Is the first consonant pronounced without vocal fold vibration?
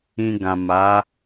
no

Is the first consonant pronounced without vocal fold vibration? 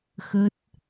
yes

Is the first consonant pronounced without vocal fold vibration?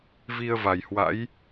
no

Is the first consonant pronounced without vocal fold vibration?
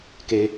yes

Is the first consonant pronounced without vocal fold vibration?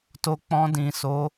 yes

